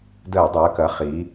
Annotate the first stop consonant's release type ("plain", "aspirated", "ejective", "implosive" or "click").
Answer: plain